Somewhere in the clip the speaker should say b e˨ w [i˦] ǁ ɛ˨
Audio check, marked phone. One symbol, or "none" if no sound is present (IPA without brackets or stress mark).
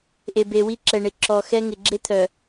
i˦